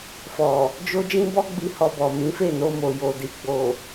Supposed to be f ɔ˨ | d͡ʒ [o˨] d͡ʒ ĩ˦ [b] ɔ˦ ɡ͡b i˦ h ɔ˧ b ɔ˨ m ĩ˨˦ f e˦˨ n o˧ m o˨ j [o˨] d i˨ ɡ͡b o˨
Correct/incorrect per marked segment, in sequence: incorrect: o˦, correct, correct

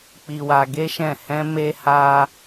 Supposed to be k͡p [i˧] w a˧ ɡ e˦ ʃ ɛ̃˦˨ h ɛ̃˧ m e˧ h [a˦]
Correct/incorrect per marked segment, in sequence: correct, incorrect: a˧

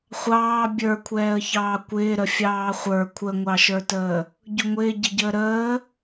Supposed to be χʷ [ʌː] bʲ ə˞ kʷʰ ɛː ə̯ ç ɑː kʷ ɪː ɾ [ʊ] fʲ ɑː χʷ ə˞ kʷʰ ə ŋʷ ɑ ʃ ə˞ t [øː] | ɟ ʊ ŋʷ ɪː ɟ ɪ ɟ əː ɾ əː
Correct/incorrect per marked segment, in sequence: incorrect: ɑː, incorrect: ə, incorrect: əː

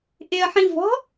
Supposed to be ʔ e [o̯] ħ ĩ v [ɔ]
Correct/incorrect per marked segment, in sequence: incorrect: ɐ̯, incorrect: ɔ̤

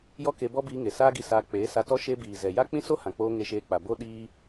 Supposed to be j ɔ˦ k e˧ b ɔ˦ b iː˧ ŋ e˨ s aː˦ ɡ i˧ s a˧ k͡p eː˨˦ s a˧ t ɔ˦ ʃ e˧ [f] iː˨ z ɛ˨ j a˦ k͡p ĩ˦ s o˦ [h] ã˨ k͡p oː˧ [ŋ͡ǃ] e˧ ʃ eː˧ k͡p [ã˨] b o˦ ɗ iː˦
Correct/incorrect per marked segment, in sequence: incorrect: b, correct, incorrect: ŋ, incorrect: a˨

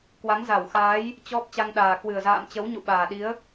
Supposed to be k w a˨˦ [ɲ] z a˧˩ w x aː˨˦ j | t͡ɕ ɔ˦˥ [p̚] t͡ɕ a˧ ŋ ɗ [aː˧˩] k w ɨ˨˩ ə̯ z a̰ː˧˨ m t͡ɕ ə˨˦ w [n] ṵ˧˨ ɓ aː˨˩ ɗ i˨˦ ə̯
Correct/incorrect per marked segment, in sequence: incorrect: ŋ, correct, incorrect: aː˨˩, incorrect: ɲ

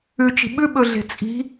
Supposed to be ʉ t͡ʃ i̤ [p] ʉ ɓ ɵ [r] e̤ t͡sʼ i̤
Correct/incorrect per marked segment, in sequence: incorrect: ɓ, incorrect: ɮ

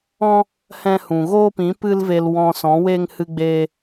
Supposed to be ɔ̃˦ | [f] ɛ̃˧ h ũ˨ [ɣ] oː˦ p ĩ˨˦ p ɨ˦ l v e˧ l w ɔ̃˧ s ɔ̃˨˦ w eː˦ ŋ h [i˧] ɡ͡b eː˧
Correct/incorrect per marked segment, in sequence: incorrect: h, correct, incorrect: ɨ˧

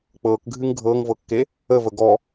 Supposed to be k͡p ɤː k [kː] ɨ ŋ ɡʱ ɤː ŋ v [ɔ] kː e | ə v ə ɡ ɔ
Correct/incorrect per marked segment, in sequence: incorrect: ɡʱ, incorrect: ɤ

